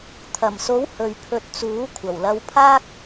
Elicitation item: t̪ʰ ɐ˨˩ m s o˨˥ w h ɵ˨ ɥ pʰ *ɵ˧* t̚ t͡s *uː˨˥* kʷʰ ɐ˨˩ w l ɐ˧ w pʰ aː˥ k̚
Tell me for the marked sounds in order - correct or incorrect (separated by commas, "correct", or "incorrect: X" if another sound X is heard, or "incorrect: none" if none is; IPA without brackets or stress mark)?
correct, correct